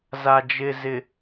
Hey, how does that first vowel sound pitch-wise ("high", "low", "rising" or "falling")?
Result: low